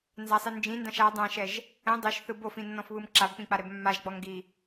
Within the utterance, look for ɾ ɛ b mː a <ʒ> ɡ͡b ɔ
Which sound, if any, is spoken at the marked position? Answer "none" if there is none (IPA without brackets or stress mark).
ʒ